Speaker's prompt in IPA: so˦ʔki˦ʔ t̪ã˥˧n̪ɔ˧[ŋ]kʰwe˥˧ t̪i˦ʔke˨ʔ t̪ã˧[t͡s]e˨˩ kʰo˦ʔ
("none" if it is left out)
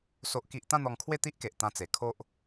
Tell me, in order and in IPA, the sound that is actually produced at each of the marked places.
ŋ, t͡s

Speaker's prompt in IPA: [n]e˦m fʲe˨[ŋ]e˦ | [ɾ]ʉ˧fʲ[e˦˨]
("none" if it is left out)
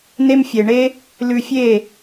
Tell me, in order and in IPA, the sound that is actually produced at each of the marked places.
n, ɳ, l, e˦˨

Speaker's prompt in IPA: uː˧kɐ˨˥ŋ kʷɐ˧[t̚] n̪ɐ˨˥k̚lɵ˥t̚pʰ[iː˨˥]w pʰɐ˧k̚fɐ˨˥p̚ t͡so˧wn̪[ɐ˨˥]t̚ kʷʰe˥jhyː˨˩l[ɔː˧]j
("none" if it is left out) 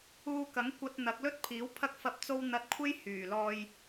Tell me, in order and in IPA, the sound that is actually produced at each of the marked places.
t̚, iː˨˥, ɐ˨˥, ɔː˧

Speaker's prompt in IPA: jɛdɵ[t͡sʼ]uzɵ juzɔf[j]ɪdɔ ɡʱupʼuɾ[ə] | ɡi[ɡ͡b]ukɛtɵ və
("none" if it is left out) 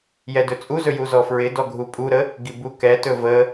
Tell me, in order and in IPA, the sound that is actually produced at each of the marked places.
t͡sʼ, ɹ, ə, b

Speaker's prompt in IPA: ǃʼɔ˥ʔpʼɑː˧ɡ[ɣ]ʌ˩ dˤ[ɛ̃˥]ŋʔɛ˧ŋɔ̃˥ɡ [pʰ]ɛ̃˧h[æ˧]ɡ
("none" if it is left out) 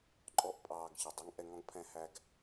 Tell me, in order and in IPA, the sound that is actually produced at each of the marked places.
ç, ɛ˥, pʰ, æ˧

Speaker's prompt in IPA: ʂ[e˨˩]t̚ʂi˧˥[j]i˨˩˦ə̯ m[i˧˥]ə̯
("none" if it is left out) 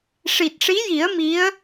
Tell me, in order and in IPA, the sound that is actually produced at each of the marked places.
i˨˩, j, i˧˥

